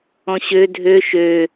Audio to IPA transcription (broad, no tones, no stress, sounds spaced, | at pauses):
ɔ̃ ɕ ø dʱ ø ʃ ø